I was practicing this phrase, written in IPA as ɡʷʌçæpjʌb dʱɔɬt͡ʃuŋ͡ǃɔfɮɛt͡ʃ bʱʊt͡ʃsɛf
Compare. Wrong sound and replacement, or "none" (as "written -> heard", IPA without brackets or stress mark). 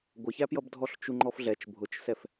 none